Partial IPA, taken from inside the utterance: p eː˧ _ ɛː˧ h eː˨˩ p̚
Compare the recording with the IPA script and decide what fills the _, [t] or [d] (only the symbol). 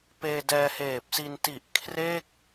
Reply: d